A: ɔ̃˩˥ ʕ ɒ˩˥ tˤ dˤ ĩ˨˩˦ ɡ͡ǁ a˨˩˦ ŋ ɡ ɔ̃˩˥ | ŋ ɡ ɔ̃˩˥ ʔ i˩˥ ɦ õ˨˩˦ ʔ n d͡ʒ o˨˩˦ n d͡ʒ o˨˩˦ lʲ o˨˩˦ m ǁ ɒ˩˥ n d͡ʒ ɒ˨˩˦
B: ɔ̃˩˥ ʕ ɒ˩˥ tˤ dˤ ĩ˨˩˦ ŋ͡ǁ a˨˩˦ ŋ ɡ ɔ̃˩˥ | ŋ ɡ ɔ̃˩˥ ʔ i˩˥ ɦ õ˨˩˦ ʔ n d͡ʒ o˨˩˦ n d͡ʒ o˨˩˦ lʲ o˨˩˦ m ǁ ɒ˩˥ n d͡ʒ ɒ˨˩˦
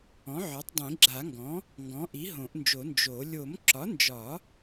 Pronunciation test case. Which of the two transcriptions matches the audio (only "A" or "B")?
A